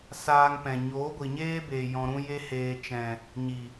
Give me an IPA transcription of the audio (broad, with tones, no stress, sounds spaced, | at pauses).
s aː˧ ŋ p ɛ̃˨ ɲ oː˨˦ ɡʷ i˨ ɲ eː˦ b eː˨ j ɔ̃˧ ɾ ũ˦ j e˦ h eː˧ t͡ʃ ɛ̃˨ | ɲ i˨